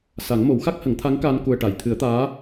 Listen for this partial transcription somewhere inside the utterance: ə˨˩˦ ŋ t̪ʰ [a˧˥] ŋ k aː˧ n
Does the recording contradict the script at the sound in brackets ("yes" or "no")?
no